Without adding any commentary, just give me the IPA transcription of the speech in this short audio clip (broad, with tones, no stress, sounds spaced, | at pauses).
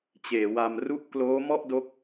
t͡ɕ eː˩˦ w a˧ m r u˦˥ ʔ k l oː˦˥ m ɔ˥˩ ʔ d o˦˥ k̚